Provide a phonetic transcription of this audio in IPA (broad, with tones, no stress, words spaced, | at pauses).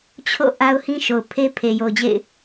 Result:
t͡ɕʰo̰˦˨ ʔa˦ʊ̯hĩ˦ ʃo˨ʊ̯pʰe˦ pʰe˨jo˨ʊ̯d͡ʑḛ˦˨ɪ̯